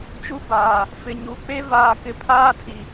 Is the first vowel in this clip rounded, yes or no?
yes